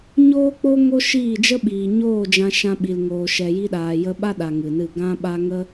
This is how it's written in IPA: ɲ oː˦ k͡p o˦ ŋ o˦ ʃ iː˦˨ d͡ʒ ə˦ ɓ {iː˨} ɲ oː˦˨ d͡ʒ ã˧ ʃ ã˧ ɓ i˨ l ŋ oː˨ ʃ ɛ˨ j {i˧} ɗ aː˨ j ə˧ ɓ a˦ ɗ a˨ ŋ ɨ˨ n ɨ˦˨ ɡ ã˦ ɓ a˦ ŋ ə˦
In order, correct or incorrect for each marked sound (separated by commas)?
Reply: correct, correct